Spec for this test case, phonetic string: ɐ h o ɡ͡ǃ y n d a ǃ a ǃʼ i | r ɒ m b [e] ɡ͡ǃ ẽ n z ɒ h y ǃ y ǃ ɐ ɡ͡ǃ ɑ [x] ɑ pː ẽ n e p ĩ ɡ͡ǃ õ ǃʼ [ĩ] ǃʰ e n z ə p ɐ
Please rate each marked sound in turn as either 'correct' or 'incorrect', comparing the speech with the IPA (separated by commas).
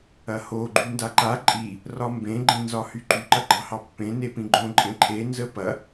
incorrect, incorrect, incorrect